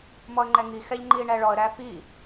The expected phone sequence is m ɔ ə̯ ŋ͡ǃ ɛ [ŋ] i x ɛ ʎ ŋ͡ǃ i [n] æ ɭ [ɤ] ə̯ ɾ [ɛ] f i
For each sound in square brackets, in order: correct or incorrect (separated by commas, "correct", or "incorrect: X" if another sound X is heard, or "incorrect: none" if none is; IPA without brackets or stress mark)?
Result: correct, incorrect: ɳ, incorrect: ɔ, incorrect: æ